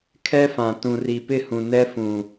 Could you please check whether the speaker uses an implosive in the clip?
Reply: no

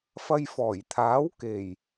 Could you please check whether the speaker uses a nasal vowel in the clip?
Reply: no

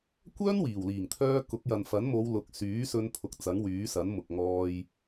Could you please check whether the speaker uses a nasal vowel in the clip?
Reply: no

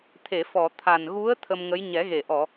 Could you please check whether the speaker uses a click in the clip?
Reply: no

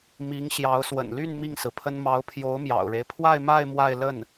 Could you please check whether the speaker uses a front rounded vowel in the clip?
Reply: yes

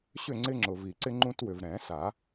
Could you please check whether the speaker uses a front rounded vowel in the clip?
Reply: yes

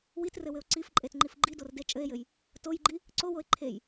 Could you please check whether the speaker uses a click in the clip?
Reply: yes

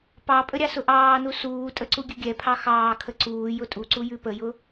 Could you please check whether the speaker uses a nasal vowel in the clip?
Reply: no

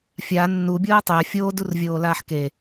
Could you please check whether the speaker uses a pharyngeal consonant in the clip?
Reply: yes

